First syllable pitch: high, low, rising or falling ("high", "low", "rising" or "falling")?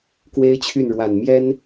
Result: high